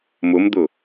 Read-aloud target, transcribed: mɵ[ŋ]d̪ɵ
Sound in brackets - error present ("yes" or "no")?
yes